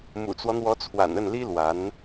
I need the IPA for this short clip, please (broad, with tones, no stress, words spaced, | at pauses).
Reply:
mṵ˨˩t͡swɔ˦n̪wɔ˧˥t͡sʰwa̰˨˩n ə˥˩nli˥lwa˧˥n